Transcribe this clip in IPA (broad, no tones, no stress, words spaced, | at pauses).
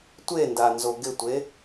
tʷendanzo ɡɪtʷe